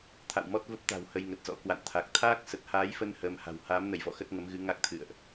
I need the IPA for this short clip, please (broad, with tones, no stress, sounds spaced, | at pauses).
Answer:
t̪ʰ a̰˧˨ w m ɔ˦˥ t̚ v ə˦˥ p̚ t̪ a̤˨˩ w h ə˧ j ŋ ə˨˩ t̚ z ɔ̰˧˥ k w a̰˧˨ n t̪ʰ a˨˩ k̚ t̪ʰ aː˦˥ k̚ s ə˨˩ t̚ h aː˨˦ j f ə˧ n h əː˧ m h a̤˨˩ w h aː˨˦ m n ə˧˩ j v ɔ̰˧˨ x ə˦˥ t̚ ŋ ə˨˦ m ɣ ɨ˨˦ ŋ a˦˥ k̚ t̪ʰ ɨ̰˧˨ ə̯ ʔ